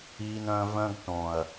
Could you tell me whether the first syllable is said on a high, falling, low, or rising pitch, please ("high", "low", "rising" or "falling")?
high